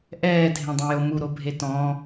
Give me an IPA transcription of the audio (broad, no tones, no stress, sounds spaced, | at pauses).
ʔ ɛː dʱ ẽ dˤ ɛ̃ j o m u ɾ o bʱ e t ɔ̃